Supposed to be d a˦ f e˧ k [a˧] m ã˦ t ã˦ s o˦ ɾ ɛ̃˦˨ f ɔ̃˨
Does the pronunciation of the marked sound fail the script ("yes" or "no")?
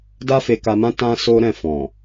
no